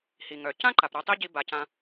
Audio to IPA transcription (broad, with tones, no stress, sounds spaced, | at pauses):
h i˩ ŋ œ˩ c ã˥ ǃ a˧ p ɾ œ˥ tˤ i˥ ɟ i˧ b a˩˧ c ã˧